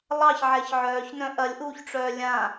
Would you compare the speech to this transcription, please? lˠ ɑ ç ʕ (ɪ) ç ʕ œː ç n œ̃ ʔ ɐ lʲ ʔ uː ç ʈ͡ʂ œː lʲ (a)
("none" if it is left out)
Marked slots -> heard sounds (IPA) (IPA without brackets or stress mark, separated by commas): ɛ, ã